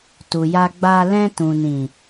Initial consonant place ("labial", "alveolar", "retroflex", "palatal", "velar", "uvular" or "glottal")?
alveolar